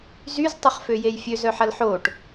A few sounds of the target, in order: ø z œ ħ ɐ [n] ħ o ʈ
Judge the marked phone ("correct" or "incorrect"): incorrect